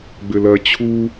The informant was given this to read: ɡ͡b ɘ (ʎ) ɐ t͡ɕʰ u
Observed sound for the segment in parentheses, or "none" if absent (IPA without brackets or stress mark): l